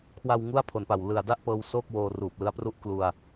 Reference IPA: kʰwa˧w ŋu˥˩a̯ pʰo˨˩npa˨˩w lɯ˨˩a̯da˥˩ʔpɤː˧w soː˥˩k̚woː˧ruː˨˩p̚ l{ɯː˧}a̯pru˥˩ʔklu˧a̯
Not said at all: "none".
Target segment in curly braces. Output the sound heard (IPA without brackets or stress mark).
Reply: ɯ˧